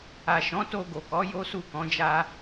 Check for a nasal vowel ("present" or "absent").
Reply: present